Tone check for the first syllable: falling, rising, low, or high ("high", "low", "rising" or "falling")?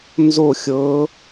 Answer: falling